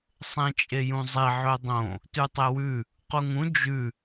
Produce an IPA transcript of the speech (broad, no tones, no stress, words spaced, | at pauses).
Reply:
sˤẽt͡ʃʼejũzˤi ʕɵdˤõ | tʉtˤewʉ | quŋũ d͡ʒʉ